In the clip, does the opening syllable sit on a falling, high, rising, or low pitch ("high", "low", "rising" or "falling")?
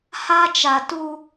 high